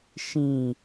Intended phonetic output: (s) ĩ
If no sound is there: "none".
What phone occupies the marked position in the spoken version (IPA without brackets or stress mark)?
ʃ